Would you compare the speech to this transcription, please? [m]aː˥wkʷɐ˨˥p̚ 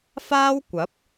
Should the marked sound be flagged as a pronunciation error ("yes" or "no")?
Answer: yes